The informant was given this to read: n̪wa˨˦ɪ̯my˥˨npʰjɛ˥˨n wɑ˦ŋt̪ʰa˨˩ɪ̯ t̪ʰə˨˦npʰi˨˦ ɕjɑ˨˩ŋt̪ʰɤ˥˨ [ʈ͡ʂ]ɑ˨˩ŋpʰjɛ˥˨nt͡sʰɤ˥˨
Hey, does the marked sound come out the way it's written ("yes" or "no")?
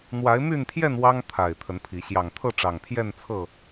yes